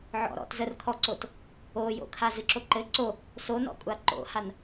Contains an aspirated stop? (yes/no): yes